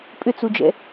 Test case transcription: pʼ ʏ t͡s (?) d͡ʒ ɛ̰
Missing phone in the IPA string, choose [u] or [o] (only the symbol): u